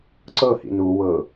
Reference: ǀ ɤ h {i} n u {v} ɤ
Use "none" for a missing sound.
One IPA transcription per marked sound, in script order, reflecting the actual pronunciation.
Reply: ḭ, w

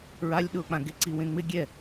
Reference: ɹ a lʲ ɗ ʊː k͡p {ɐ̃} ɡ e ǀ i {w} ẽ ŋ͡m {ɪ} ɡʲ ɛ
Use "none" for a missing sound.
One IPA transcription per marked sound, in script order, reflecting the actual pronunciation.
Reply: ã, w, ɪ

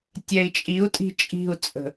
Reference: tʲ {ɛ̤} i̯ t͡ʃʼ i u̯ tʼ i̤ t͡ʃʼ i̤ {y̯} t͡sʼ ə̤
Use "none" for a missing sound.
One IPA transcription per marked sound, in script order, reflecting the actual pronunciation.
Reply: ɛ, u̯

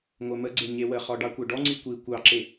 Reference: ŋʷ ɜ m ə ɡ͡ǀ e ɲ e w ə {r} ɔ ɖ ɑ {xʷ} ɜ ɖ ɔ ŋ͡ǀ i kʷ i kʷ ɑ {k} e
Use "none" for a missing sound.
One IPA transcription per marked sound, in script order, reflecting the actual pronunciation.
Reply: χ, kʷ, ǁ

